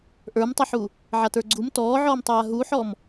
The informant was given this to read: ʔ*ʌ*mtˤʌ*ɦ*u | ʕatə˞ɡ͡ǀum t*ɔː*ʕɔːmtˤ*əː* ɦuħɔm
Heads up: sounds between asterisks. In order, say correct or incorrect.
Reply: incorrect: ə˞, incorrect: ħ, correct, incorrect: aː

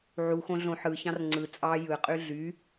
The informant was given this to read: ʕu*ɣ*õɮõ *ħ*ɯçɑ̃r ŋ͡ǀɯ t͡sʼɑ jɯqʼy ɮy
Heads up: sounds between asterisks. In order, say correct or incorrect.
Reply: incorrect: x, correct

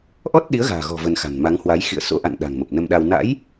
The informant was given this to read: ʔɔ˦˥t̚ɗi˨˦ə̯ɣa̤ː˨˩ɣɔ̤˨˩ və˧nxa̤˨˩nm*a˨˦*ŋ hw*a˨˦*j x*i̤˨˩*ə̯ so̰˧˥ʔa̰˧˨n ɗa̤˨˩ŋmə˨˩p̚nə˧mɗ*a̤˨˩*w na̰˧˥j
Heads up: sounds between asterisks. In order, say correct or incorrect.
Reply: correct, correct, incorrect: ḭ˧˨, incorrect: a˧

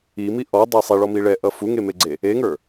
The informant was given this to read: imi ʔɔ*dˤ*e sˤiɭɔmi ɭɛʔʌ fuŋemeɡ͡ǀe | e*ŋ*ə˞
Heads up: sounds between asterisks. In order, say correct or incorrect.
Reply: correct, correct

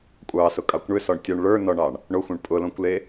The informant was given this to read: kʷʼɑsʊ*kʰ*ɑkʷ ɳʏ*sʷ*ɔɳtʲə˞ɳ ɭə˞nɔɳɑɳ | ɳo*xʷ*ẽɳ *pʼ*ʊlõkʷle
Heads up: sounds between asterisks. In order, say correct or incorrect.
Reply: incorrect: kʼ, incorrect: s, correct, correct

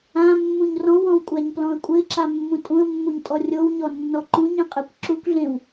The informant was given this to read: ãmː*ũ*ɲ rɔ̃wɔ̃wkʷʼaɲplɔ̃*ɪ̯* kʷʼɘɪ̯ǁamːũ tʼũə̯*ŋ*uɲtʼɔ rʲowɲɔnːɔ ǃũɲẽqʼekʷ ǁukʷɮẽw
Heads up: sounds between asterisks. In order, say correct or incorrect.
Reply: correct, incorrect: ə̯, incorrect: mː

